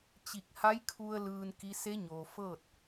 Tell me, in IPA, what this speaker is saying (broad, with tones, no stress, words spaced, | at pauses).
t͡ɕi˧˩k̚ha˧˥jkʰu˧ə̯ lɯː˧nki˧˥ se˧˥ɲoː˩ fɤː˥˨t̚